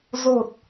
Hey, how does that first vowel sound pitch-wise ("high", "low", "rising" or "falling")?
low